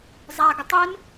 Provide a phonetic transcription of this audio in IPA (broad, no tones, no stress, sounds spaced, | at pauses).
zˤ a ɡ ɪ tˤ ɪ n